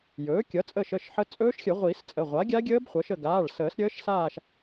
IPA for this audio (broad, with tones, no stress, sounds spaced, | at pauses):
j ɵː˩˥ kʲ ʌ˩˥ t͡sʼ əː˦˨ ʃ ə˩˧˩ ʃ ħ ə˦˥ t͡sʼ ɵː˦˥ ʃ xʲ ə˨˩˦ ʁʷ iː˨˩˦ s t͡sʼ ə˩˧˩ ʁʷ a˩˥ ɡʲ a˦˥ ɡʲ əː˦˥ b χʷ ʌ˩˥ ʃ ə˦˨ ɡ aː˩˧˩ ɭ s əː˨˩˦ s ɾʲ əː˦˥ ʃ s aː˦˨ ʃ